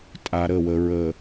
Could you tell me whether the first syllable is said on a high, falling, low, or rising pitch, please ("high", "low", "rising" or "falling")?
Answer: low